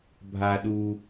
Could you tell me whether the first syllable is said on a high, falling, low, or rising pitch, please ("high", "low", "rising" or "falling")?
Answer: low